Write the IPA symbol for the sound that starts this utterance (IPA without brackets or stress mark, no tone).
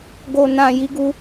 ɡ